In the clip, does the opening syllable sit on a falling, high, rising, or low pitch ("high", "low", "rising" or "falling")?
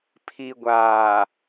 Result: low